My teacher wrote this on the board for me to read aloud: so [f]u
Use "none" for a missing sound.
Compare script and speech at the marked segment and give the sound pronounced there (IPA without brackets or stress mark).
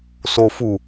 f